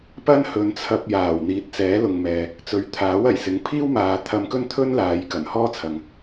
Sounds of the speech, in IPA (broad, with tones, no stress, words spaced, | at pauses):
pɐ˥nhɵ˨˧nt͡sʰɐ˧p̚jaː˨˩w n̪iː˨˥t̚t͡sɛː˨˥lʊ˨ŋmɛː˨ | t͡sɵ˨˥ɥt̪ʰaː˨˥w ɐ˨˩jsɪ˨˥ŋ pʰiː˥wmaː˨ t̪ʰɐ˧mkɵ˥nt̪ʰɵ˥n laː˨˧j kɐ˨˩nhɔː˥t͡sʰɐ˨ŋ